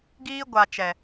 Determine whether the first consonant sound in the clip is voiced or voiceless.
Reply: voiced